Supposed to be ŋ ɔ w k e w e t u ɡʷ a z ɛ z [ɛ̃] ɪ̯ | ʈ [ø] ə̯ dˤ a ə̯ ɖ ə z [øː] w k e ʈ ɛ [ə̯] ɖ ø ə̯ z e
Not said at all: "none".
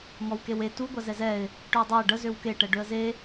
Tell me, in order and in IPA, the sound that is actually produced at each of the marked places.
ɛ, ø, ø, none

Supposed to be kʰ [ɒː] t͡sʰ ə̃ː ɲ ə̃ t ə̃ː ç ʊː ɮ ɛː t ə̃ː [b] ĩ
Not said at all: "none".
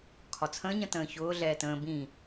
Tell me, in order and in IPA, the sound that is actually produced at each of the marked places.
ɒ, b

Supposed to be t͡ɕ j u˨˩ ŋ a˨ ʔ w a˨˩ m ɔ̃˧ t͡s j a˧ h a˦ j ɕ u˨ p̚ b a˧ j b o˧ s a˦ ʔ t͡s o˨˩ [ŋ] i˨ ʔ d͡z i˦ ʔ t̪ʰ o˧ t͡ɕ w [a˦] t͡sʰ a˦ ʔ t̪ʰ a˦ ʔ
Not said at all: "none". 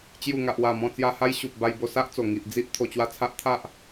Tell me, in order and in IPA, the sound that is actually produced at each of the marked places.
ŋ, a˦

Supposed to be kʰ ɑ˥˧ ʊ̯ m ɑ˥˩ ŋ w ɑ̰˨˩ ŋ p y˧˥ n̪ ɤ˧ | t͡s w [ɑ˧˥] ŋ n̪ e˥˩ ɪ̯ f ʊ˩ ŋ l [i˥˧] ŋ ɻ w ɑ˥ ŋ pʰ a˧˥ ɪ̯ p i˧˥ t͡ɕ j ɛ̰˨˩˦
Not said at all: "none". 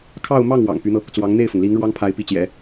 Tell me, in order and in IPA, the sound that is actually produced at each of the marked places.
ɑ˧˥, i˧˥

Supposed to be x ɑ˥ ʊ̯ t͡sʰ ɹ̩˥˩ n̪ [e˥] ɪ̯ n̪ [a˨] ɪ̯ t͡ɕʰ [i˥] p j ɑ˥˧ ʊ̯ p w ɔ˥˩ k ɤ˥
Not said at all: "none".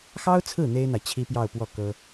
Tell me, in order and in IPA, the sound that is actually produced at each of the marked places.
e˥, a˨, i˥

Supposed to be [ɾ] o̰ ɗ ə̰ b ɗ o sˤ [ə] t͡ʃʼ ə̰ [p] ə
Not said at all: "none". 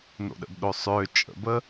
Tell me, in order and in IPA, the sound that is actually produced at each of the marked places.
n, ø, b

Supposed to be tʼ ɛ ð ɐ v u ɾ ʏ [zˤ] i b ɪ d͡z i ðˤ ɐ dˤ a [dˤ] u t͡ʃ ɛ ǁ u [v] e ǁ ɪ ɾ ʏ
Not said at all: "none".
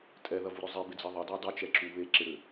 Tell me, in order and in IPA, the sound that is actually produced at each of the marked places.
zˤ, dˤ, β

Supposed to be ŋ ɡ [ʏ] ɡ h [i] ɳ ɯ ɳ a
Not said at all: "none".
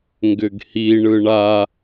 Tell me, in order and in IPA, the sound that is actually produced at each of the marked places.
ʏ, i

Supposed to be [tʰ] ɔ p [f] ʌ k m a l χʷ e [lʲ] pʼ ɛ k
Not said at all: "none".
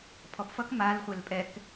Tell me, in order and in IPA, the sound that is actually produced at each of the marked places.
pʰ, f, l

